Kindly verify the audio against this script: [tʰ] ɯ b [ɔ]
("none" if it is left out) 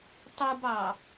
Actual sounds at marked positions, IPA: tˤ, ɑ

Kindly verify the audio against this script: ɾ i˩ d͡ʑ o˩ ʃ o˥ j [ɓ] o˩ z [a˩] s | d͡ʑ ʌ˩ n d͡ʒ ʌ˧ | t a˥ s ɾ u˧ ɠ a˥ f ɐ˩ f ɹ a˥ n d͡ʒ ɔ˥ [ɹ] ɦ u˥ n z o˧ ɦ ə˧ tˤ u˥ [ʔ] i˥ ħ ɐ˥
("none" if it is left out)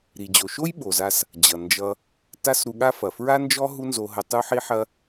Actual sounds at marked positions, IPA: ɓ, a˧, none, ħ

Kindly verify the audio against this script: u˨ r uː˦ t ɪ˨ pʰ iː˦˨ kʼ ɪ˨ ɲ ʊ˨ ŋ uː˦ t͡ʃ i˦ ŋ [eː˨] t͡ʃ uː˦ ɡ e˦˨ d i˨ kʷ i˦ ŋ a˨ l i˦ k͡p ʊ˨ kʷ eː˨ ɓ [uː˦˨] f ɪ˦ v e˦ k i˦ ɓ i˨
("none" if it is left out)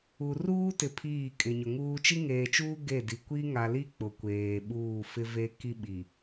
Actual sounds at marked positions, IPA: eː˨, uː˦˨

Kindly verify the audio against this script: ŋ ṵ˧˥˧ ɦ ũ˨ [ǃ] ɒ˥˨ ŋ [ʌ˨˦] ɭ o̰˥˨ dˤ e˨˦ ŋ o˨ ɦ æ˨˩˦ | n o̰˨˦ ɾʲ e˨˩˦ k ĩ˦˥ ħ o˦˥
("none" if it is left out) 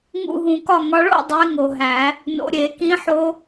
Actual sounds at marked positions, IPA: k, ɒ˨˦

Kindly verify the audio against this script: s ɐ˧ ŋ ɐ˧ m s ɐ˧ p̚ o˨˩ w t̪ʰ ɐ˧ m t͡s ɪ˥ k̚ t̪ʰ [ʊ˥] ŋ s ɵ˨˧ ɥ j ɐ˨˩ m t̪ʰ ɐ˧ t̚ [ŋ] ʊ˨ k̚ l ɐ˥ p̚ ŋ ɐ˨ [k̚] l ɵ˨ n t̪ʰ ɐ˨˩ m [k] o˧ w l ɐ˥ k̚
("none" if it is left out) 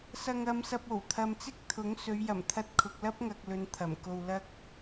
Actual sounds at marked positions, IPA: ʊ˨˥, kʰ, k̚, k

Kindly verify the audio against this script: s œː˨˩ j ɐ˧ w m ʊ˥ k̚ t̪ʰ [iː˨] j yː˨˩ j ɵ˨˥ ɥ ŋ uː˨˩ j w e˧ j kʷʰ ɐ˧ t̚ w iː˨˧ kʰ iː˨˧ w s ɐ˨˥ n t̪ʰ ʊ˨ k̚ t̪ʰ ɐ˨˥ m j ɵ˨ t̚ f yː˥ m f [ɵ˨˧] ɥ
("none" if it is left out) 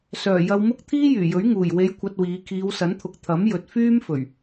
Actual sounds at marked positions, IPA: iː˥, ɵ˨˩

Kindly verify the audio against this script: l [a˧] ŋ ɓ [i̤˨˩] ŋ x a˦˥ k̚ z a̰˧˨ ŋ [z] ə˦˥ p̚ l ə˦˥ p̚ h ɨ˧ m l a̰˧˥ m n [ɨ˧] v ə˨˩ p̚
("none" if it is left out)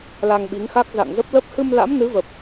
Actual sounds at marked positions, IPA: a˧, i˨˦, z, ɨ˨˦

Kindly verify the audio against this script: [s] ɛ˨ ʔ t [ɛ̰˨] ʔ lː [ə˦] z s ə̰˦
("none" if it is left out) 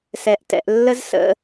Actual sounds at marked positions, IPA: s, ɛ̰˨, ə˦

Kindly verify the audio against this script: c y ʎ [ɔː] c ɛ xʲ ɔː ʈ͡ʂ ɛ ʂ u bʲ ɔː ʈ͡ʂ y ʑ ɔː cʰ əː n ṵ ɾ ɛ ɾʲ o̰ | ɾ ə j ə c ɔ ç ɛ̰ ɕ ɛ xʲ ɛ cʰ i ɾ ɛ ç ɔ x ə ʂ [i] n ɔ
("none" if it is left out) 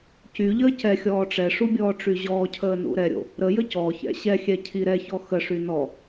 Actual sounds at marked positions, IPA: əː, y

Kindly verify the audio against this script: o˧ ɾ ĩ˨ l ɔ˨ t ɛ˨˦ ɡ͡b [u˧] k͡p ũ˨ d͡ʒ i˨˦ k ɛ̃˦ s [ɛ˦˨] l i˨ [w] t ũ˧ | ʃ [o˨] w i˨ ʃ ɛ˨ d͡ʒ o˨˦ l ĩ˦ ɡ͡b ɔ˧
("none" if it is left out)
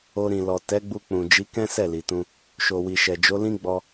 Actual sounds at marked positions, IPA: u˧, ɛ˦˨, none, o˨

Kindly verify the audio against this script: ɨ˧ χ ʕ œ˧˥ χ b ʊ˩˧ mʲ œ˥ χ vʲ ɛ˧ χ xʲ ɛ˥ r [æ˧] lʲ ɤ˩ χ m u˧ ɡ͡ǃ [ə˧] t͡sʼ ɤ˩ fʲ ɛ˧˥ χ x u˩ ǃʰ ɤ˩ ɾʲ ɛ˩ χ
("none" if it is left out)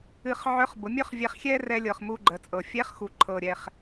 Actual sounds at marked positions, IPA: ɛ˧, ə˩˧

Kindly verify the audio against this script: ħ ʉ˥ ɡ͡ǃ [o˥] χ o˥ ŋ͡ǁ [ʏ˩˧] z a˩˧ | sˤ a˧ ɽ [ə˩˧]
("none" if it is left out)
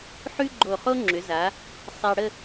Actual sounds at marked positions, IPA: o˧˩, ʏ˩˧, ə˥˧

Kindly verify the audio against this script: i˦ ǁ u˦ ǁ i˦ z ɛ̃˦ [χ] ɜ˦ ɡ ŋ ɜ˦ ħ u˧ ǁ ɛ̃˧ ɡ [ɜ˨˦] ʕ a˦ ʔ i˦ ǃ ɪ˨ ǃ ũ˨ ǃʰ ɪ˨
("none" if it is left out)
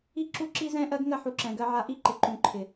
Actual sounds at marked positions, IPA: ʔ, ɜ˦

